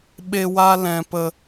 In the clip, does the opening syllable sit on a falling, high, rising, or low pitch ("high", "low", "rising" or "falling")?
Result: high